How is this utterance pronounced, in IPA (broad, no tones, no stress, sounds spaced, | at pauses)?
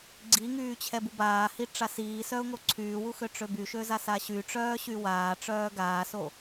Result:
ɡ͡ǀ i ŋ yː t͡ɕʰ ɛ b u b aː h i ʈ͡ʂ a s iː s œ ʊ̯ ŋ o ǀʰ yː w u x ø ʈ͡ʂ ø b y ʃ ø z a s a ɕ y ʈ͡ʂ œː ɕ y w aː ʈ͡ʂ œː ɡ aː s o